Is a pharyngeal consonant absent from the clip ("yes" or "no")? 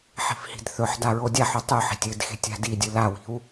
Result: no